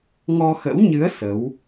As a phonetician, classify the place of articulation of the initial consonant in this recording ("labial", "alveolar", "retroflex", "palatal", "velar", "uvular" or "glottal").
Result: velar